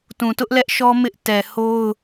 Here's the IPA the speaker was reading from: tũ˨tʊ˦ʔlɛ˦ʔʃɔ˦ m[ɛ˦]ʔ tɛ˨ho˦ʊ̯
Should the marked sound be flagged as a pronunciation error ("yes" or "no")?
yes